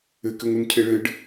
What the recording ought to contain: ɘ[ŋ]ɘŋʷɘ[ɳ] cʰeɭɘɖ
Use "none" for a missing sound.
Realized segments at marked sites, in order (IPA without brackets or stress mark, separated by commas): k, n